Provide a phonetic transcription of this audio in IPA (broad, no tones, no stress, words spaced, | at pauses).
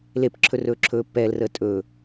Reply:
lepǁʰɵ rɵːǁʰɵːpːɛːlrəː tʼɵ